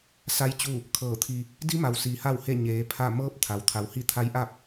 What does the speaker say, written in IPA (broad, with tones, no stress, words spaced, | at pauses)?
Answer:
sa˧˥j t͡ɕu˥˨ | kʰɤː˧˩t̪ʰi˧ | di˧˥ma˩w siː˩˧ha˥˨whe˥˨ ɲeː˩˧pʰa˥˨ mɤː˧˥p̚ t̪ʰa˩wt̪ʰa˩˧whi˥˨ t̪ʰa˧˥jʔa˥˨p̚